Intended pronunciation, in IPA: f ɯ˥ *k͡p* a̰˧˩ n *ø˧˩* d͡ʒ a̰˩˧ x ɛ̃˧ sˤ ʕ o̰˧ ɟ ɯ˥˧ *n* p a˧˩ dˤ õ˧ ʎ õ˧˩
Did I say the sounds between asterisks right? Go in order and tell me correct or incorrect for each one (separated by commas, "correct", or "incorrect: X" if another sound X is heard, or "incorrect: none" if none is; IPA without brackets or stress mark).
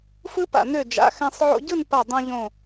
incorrect: p, correct, correct